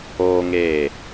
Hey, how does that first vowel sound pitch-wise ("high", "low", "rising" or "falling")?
high